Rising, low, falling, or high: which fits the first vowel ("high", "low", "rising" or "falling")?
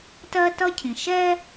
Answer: high